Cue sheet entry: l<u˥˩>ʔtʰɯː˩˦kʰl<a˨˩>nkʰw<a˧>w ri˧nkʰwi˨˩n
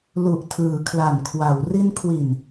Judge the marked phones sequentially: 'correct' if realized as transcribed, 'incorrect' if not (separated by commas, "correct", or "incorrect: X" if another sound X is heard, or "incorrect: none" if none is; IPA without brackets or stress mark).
incorrect: u˨˩, correct, incorrect: a˩˦